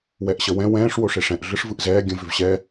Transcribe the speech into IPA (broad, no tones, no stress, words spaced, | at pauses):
wɛʔɕəwɛ̃ wɛ̃ːʂ woʂeʂɛ̃ʔ ɮɯʂvɯʔzɛː ɡʲə̃ vʏvɕɛ